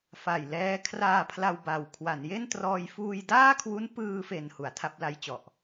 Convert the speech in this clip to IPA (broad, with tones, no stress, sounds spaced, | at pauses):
f a˨˩ j l ɛː˦˥ kʰ r aː˧ pʰ l a˧ w b a˨˩ w kʰ w a˩˦ n j e˥˩ n t r ɔː˧ j f uː˧ j d aː˥˩ kʰ w u˦˥ n p ɯː˧ f e˨˩ n h u˩˦ a̯ tʰ a˥˩ p̚ l a˦˥ j t͡ɕ ɔ˨˩ ʔ